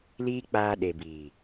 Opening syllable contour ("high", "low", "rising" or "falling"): high